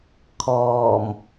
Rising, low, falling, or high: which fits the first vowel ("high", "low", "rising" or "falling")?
low